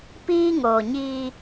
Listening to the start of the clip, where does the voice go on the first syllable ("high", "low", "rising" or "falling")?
high